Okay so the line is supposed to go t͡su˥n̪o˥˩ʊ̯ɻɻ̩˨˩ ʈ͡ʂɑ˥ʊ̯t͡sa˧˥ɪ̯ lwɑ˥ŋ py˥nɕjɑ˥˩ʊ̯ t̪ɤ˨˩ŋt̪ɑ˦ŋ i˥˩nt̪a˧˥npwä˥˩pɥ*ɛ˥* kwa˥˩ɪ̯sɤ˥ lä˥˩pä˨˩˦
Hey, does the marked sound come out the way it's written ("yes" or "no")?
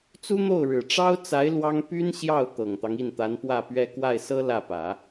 yes